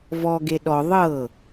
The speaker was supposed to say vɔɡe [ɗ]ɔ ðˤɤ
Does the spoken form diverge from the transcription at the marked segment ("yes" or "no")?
no